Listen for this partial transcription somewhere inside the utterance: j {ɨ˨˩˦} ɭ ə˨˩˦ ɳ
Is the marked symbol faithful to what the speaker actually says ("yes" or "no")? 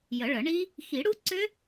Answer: no